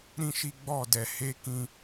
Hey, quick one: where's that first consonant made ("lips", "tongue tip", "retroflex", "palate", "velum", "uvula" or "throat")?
tongue tip